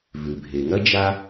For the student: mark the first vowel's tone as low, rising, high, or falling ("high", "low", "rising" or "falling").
low